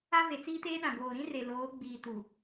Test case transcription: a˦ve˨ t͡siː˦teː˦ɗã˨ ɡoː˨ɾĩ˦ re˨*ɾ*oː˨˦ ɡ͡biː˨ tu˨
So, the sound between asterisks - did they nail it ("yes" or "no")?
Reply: no